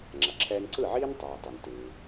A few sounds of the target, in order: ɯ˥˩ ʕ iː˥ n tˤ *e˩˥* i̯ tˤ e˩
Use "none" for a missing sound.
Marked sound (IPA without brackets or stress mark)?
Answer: e˩